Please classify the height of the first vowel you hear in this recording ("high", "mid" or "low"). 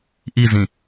high